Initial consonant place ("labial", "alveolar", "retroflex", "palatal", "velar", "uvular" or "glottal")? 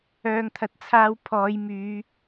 velar